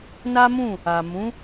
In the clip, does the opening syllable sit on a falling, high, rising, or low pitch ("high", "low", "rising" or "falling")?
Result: high